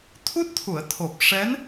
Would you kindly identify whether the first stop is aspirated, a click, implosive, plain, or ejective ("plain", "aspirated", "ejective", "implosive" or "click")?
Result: aspirated